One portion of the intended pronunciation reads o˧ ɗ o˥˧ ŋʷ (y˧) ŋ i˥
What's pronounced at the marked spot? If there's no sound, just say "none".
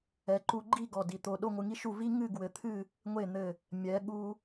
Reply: ɨ˧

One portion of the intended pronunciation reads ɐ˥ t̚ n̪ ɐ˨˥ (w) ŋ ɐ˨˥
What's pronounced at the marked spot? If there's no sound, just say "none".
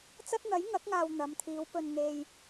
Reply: j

